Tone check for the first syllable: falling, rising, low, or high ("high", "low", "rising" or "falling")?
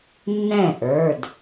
falling